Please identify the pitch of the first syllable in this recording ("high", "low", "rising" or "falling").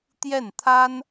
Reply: falling